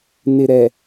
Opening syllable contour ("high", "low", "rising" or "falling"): low